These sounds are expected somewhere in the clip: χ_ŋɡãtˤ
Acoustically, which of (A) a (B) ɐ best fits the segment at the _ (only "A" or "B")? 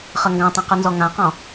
B